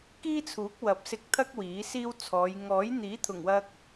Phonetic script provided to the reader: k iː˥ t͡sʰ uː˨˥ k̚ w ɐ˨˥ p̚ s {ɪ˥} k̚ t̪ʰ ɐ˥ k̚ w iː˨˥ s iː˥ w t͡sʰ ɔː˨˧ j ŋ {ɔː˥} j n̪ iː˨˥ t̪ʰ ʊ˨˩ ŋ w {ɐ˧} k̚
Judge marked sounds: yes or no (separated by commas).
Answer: no, no, yes